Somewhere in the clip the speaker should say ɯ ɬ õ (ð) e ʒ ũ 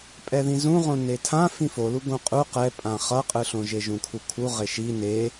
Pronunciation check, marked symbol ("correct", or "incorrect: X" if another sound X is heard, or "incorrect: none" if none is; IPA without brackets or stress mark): incorrect: ʒ